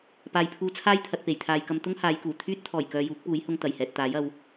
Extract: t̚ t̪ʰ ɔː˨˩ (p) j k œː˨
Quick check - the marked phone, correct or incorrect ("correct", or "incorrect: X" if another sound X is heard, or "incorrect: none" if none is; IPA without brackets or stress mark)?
incorrect: none